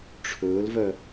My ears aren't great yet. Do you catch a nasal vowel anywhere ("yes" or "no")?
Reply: no